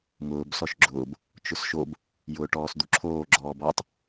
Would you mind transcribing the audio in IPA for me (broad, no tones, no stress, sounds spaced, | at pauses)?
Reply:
ŋ ʊː b s ɔ ʃ ɡ͡ǁ ʊː b | t͡ʃ ʊ s ʃ o b | j ʊː ʈ ɔː s d̪ u ǁʰ oː ɡ͡ǁ ɔː b ɔ tˤ